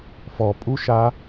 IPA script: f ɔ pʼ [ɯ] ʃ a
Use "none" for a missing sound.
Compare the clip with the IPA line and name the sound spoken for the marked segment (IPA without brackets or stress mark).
u